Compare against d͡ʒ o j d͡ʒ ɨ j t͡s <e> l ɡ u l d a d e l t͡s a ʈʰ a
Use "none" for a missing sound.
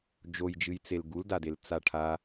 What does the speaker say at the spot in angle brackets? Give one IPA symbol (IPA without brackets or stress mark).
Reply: e